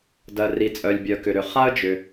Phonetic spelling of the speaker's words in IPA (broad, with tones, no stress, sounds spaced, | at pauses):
d ɜ˩ r i˩ t͡sʼ œ˩ lʲ bʲ œ˩ k ʏ˩ ɾ ʏ˩ χ a˥ ə̯ d͡ʒ ʏ˩